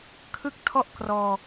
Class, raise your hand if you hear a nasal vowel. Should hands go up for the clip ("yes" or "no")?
no